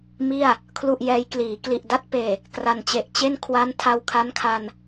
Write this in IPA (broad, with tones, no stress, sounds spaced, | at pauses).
m i˥˩ a̯ | kʰ l u˥˩ ʔ j ɛː˦˥ j k l iː˩˦ k l i˨˩ ʔ d a˥˩ t̚ p eː˨˩ | k r a˨˩ n t͡ɕ e˨˩ ʔ t͡ɕ e˥˩ n kʰ w a˦˥ n tʰ a˧ w kʰ a˦˥ n kʰ a˧ n